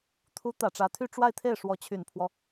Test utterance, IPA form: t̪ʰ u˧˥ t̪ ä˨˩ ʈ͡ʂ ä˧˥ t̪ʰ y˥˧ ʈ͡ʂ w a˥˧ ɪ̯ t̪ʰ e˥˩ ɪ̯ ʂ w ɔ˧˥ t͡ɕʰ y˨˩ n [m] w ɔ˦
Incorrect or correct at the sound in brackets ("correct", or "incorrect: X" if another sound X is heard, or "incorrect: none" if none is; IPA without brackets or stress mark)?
incorrect: pʰ